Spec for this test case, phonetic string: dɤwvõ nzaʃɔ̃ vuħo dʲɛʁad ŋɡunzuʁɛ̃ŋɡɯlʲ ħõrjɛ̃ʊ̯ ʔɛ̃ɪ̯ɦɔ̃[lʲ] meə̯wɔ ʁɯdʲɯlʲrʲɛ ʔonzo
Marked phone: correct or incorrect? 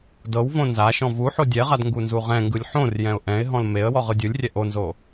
incorrect